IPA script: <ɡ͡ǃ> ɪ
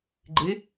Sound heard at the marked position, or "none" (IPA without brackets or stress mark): ɡ͡ǃ